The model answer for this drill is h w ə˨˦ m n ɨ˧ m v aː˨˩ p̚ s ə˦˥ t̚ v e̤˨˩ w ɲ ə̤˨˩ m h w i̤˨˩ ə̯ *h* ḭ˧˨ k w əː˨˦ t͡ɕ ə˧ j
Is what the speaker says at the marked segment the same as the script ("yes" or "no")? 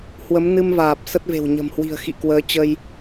no